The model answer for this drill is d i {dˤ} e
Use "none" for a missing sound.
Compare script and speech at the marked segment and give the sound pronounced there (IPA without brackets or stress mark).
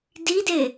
d